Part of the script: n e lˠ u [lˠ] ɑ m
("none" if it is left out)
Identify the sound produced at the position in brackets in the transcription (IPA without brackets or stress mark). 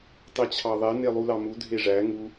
l